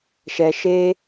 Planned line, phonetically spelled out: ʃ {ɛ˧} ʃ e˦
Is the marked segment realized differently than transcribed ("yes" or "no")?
no